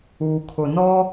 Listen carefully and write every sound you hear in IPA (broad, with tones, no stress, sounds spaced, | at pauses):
uː˨ kʰ ʊ˨ n ɔ˦